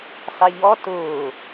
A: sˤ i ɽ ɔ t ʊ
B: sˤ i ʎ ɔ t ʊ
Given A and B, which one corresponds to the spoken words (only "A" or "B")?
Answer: B